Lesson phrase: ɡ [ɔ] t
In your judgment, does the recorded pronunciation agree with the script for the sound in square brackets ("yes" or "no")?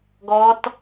yes